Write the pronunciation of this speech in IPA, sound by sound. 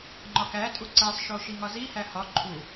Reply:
ŋ͡ǃ ɒ k æ tʼ u ǀ æ sˤ ʃ o ʃ i ŋ ɒ z i h æ h ɒ ǃʰ u

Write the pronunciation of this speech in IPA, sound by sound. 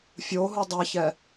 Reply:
fʲ o ɦ u dˤ a ç ɛ

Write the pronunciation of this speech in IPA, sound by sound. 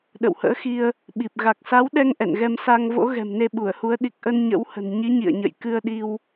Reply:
ɗ ə̰˧˨ w h ə̰ː˧˥ x i˧ ə̯ | ɓ i˨˩ p̚ ɣ a˨˩ k̚ s a˨˦ w ɗ ɛ˧ ŋ ʔ ɛ̰˧˨ n ɣ ɛ˧ m s a˧ ŋ v o̰˧˥ ɣ ɛ̤˨˩ m n e˧ ɓ u˧˩ ə̯ h u˨˦ ə̯ ɗ i˨˩ k̚ ʔ ə˧ n ɲ ə̰˧˥ w h ə̤˨˩ n ɲ i˨˦ ɲ ḭ˧˨ ə̯ ɲ ə̰˧˨ j k ɨ˧ ə̯ ɗ i˧ w

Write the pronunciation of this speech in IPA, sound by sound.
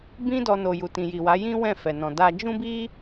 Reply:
b ĩ˦ d ɔ˧ n o˨ j u˨ t ĩ˨ j i˨ w a˨˦ j ĩ˦ w ɛ̃˦˨ f ɛ˨ n ɔ̃˨ d a˧ d͡ʒ ũ˦ b i˦

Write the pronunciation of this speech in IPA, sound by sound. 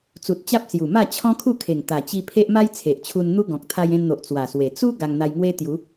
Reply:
t͡s u˨ t̚ t͡ɕ a˦ p̚ s j u˨˩ m a˥˧ t͡ɕʰ ɔ̃˦ kʰ u˥˧ kʰ e˨˩ ŋ t̪ a˨˩ t͡ɕ i˧ pʰ e˦ ʔ m a˦ j t͡sʰ e˨ ʔ t͡ɕʰ u˧ n n̪ u˦ ɡ ɔ̃˨ k̚ t̪ʰ a˧ j ẽ˧ n n̪ o˨ ʔ t͡s w a˨˩ s w e˨˩ t͡s u˦ ɡ a˧ ŋ n̪ a˧ j ŋ w e˦ t̪ j u˨˦

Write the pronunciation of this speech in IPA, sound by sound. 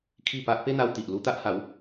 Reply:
kʰ i˥˧ p a˦ ʔ p e˦ n̪ a˧ w t̪ i˨ ʔ l u˧ t̪ a˦ ʔ h a˨˦ w

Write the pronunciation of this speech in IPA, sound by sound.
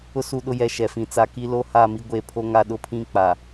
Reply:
ʊ˦ s u˦˨ ɗ ʊ˦ j ɛ˨ ʃ ɛ˨ f ĩ˨ t͡s a˨ k i˦ l o˦ h a˦˨ m i˦ ɡʷ e˦˨ pʰ o˦ ŋ a˦ ɗ ʊ˦ pʰ ĩ˦ k͡p a˨

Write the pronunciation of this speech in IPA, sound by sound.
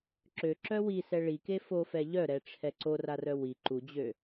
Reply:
ǁ ø ǁ œ w i s ɛ ɭ i k e f o f ɛ ʎ œ ɾ ɛ ʈ͡ʂʰ ɛ ǀ o r a r œ w i ǃ u d͡ʑ ø

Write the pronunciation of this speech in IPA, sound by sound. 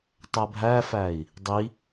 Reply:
tˤ æ bʱ æ f æ i̯ | dˤ i

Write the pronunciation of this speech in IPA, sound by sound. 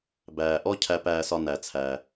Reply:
b æː˩ ʔ ɔ˦ cʰ æ˨ p æː˨ s ɒ˨ n æ˩ t͡sʰ æ˩

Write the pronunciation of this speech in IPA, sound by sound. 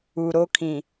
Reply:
u˨ ɾ o˦ kʰ ĩ˨

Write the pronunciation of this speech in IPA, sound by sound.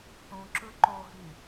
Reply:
θ ũ ǁ ɯ ǃ o ɦ y

